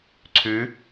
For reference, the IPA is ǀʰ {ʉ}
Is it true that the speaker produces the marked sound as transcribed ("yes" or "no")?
yes